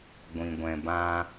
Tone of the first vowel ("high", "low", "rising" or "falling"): low